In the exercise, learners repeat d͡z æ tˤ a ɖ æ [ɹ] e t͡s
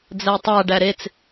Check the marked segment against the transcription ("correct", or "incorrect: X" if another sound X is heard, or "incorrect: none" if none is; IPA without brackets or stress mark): incorrect: ɾ